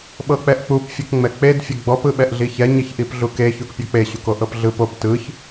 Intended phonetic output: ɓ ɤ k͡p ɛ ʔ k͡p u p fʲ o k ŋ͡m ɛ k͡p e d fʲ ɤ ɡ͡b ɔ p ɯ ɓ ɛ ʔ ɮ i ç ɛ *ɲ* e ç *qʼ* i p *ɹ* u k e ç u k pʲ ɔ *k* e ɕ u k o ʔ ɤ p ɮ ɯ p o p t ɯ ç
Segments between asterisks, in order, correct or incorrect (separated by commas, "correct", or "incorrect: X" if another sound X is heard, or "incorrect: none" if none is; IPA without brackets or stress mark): correct, incorrect: ʔ, incorrect: ɮ, incorrect: k͡p